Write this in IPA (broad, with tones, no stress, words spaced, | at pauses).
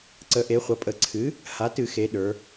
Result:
ǀə˩˥ ʔe˩˥ χʷʌ˩˧pʼə˧˩˧ ǀʰɨ˩˥ | ha˩˥tɨ˧˩˧xe˩˧ ɗə˞˩˧